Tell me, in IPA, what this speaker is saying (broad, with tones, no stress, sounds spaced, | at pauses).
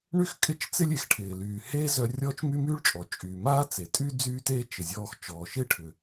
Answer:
ɳ y˥ x kʼ ɪ˥ t͡ʃ t͡s ɪ˥ lʲ e˩ x ʈʰ ɪː˩ l yː˩ h eː˥ z œ˧ rʲ ɔː˥ t͡ʃ m y˥ m yː˥ ɭ t͡ʃʼ ɔ˩ t͡ʃʼ yː˩ m aː˥ t͡s e˩ tʼ y˥ d͡z yː˥ t eː˥ t͡ʃ ɪ˩ zʲ ɔː˧ x t͡ʃ ɔː˩ ʃ ɪː˥ ʈʰ ʏ˩